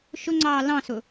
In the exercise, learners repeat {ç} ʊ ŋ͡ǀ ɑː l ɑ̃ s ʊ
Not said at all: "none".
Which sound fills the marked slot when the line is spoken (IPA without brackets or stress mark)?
ʃ